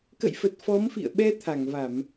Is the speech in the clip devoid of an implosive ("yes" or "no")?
no